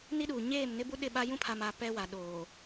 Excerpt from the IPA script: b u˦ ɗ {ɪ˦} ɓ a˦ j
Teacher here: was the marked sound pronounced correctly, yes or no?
no